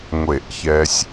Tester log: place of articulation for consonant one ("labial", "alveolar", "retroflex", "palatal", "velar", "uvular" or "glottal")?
velar